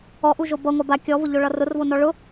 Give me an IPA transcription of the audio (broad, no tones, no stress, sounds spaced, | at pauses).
ɔ ʔ u ʒ o b ʌ ŋʷ a b a kʲ ɔ v ʊ ʎ o ɭ ʌ r ʊ r v o n ɔ ɭ ʊ